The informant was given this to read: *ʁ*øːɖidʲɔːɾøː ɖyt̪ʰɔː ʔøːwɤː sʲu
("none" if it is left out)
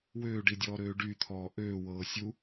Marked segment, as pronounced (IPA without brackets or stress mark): w